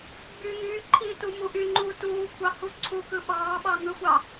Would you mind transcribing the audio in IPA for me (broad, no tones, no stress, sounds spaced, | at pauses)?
ɡ͡b y ŋ yː ǃʰ iː t u m u ʔ y ŋ͡ǃ uː t uː kʷʰ ɑ h u ǀʰ u k ɯ ɓ ɑː ɓ ɑ ŋ ɯ xʷ ɑ